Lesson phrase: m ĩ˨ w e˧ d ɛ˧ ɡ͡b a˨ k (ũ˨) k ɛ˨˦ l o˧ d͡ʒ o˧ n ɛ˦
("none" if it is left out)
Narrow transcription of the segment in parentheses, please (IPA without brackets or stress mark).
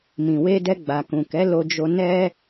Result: ũ˨